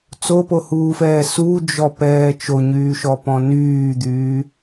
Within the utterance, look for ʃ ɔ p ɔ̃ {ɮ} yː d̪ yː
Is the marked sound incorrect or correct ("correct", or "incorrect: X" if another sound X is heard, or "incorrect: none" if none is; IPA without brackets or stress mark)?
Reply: incorrect: n